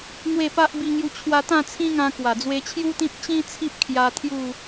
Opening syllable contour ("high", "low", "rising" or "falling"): falling